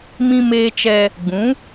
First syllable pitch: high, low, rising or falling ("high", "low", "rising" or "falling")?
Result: high